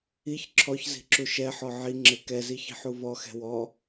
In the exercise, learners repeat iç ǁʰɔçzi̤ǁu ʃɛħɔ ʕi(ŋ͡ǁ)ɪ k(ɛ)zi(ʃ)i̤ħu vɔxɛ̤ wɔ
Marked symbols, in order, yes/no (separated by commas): yes, yes, no